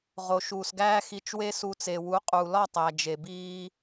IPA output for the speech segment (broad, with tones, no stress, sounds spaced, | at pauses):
ʁ o˨ ʃ uː˨ s ɡ æː˧ x i˧ t͡ʃ w e˦ s u˧ t͡s e˨ w u˨˦ qʼ uː˨ l ɒ˦˨ tˤ æ˨ d͡ʒ e˨ b iː˧